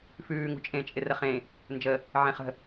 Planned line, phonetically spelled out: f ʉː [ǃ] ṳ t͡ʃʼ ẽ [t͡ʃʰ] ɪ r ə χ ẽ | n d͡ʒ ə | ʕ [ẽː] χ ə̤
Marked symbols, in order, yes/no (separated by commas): no, no, no